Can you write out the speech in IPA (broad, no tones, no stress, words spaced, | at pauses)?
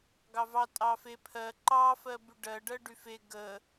ɡɑvɑ tʼɑfe pʰɜ ǃɑ fɜbyɖɜɖɜ ɖyfe ɡə